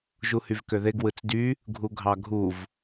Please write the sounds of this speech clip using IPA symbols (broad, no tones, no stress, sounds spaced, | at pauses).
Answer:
ʒ u h y v k ø ð e ɡ w ɯ t͡s d y | ɡʱ u ɡʱ ɑ ɡʱ u v